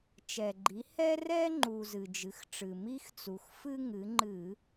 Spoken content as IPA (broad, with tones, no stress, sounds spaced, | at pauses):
t͡ʃ ɛ˩ ɡ͡ǃ i˩˧ h ɛ˦ r ɛ˦ ŋ͡ǃ u˩ z ɨ˩ d͡ʒ ɨ˩˧ x ʈ͡ʂ ɨ˩ m i˦ x t͡s u˩ x f ɨ˦ ŋ ɨ˩˧ ŋ͡ǃ ɨ˧˩˧